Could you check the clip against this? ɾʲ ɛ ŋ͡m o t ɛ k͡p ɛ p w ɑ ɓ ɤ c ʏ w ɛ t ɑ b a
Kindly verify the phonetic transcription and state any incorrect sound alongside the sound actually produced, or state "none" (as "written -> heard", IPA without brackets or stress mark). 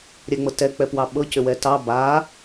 o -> ɤ